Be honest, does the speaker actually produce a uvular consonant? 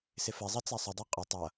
yes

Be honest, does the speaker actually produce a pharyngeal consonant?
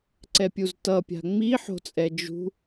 yes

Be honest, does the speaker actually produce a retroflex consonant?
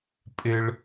yes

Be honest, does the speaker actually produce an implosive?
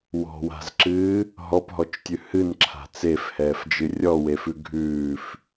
no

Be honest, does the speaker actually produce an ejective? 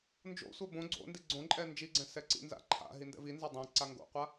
yes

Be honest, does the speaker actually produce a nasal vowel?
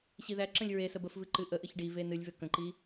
yes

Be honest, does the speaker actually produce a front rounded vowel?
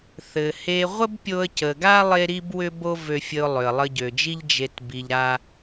yes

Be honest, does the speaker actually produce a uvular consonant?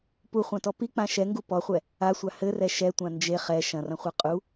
yes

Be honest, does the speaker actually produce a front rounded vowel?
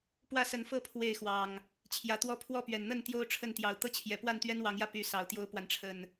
yes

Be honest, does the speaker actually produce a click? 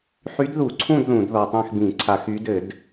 yes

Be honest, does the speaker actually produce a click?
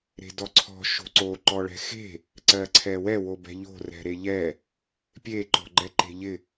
yes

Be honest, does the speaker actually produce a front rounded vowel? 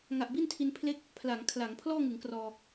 no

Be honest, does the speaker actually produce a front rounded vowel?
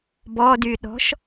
yes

